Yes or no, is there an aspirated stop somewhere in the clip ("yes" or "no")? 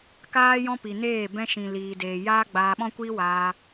no